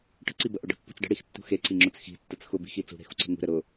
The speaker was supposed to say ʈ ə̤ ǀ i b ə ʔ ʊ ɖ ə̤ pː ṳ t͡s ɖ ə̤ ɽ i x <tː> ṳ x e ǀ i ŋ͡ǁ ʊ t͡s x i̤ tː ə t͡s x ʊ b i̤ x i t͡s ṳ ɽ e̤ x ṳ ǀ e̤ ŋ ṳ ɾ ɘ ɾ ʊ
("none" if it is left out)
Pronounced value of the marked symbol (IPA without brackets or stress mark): tː